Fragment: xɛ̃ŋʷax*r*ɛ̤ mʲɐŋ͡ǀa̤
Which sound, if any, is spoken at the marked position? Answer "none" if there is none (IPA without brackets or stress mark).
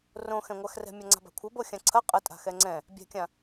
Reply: r